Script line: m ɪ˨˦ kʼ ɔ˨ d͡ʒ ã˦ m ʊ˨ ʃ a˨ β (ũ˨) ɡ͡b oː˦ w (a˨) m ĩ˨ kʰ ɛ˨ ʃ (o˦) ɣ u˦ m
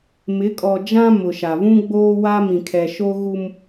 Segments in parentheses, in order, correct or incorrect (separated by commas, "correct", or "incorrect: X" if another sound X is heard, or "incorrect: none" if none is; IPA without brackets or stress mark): incorrect: ũ˦, incorrect: a˦, correct